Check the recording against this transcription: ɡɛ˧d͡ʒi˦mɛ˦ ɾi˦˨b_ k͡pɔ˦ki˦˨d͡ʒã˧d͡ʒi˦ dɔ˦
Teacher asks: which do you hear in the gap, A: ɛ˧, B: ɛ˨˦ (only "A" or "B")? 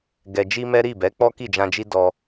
B